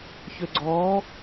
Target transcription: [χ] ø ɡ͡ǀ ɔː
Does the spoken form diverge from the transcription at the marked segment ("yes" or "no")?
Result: yes